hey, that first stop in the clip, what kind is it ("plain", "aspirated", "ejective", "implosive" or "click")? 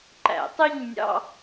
click